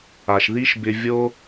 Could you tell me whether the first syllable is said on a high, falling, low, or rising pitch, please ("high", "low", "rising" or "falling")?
low